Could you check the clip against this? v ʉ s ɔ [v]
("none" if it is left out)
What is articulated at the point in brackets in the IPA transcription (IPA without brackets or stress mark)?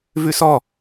none